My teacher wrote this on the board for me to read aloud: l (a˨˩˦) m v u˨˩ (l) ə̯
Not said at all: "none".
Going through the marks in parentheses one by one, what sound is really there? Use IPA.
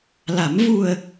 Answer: a˨˩˦, none

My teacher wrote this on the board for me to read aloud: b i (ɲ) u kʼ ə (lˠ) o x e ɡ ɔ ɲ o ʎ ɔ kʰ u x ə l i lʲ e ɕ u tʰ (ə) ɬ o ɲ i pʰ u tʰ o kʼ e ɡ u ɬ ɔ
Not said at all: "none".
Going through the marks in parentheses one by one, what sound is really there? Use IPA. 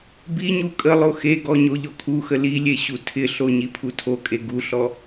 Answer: ɲ, lˠ, ɪ

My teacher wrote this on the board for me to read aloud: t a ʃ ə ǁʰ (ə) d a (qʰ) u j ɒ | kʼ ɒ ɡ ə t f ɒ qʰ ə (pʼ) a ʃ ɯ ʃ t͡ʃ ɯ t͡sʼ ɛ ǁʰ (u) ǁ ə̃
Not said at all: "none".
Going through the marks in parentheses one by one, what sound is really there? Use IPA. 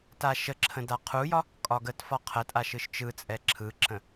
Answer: ə̃, qʰ, tʼ, ɯ

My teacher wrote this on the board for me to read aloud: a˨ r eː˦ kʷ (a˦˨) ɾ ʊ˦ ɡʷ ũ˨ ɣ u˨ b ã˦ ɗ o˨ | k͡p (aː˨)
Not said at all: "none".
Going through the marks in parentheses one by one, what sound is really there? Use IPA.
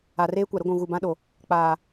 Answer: a˨, aː˨

